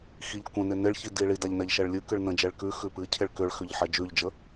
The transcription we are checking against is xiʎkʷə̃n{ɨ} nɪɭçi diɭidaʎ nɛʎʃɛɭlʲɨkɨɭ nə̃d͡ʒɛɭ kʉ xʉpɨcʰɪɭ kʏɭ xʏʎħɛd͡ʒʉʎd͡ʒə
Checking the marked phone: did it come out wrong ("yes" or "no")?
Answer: yes